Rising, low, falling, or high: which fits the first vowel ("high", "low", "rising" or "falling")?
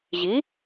rising